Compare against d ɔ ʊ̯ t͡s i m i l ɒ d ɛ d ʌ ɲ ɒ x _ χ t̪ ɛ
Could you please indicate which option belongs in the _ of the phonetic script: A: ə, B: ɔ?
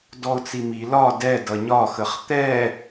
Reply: A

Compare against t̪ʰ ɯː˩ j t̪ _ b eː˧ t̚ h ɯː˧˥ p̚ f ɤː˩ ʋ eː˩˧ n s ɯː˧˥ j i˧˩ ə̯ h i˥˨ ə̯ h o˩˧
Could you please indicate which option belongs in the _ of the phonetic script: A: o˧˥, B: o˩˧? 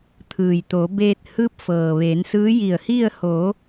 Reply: B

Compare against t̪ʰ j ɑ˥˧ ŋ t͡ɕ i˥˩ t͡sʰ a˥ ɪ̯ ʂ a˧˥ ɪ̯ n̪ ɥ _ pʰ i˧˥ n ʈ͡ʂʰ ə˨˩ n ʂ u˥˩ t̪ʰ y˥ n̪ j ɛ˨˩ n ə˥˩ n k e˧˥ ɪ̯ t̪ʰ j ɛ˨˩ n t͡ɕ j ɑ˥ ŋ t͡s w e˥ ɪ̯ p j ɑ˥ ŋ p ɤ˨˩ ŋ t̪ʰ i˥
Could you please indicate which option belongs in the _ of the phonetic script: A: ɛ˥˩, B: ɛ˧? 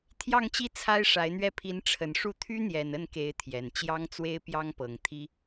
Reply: A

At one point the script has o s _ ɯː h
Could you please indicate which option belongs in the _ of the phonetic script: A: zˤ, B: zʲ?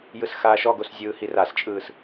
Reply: B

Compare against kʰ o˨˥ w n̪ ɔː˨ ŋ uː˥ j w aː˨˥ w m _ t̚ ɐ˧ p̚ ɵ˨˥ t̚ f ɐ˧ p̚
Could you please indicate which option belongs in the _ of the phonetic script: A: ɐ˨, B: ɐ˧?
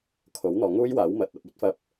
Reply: A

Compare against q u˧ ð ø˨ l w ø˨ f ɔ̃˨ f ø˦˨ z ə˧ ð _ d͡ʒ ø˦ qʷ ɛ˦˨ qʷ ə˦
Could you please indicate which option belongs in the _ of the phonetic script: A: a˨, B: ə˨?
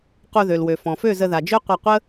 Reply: A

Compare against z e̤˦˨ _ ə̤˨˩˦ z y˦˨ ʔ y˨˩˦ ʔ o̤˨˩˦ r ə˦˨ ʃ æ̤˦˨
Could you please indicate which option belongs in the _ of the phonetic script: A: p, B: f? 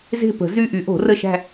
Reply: A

